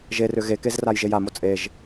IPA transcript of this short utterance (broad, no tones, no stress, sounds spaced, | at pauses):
ʒ e r ʏ ɣ e k e z r a j ʒ e j a m o t͡sʼ e ʒ